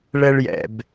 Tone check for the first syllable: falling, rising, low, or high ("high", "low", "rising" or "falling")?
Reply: high